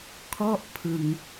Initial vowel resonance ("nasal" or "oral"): oral